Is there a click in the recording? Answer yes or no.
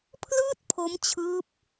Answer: no